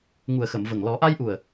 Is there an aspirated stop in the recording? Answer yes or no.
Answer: no